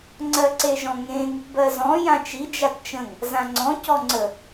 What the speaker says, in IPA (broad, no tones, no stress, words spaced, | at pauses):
ŋ͡ǀɜǀeʒɔ̃ŋẽŋ | bɜzɔ̃ jãt͡ʃi d͡ʒatt͡ʃə̃ŋ | zãŋ͡ǀɔ̃ cɔŋ͡ǀə